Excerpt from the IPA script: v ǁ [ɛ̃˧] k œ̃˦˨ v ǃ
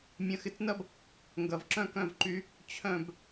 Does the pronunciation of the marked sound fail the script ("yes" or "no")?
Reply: yes